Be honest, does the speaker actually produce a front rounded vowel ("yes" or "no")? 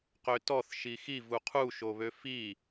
yes